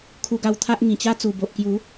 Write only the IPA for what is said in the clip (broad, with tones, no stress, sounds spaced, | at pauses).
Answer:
kʰ u˧ ɡ a˧ w t̪ʰ a˦ ʔ ŋ ĩ˨˩ t͡ɕ a˦ t͡s u˨˩ b o˨ ʔ k j u˨˦